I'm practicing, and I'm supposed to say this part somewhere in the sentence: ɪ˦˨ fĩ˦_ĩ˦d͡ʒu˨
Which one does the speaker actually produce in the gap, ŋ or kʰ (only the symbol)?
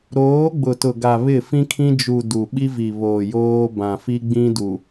kʰ